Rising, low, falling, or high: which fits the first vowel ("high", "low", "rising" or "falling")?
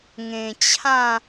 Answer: low